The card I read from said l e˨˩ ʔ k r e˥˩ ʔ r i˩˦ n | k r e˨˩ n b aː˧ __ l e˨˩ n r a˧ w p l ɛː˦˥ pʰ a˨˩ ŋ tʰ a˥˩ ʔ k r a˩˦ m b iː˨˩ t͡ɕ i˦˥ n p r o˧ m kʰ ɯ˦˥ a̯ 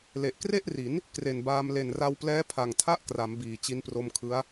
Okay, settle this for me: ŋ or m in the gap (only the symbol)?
m